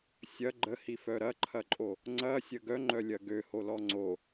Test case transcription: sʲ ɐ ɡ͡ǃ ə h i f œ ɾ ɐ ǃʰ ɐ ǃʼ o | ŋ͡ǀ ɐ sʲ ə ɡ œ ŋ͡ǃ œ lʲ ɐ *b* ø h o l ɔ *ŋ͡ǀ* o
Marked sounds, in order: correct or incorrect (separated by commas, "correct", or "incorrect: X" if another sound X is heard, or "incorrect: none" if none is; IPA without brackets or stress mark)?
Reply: incorrect: ɡ, correct